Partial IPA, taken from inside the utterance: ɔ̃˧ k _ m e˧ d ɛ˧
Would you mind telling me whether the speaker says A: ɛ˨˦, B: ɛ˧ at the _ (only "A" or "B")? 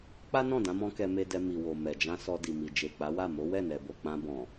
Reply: B